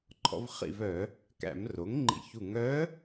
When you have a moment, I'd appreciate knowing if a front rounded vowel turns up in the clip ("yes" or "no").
yes